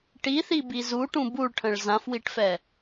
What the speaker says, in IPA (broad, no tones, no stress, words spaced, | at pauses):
ʈiθibi zuʈũ buɭʈʰə̃ɭ zãfwiʈfɛ